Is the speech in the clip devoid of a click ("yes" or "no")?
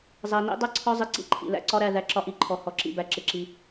no